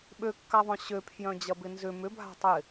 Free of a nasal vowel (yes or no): no